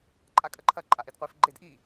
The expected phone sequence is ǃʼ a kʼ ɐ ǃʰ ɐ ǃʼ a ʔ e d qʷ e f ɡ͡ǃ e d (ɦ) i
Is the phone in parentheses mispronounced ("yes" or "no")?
yes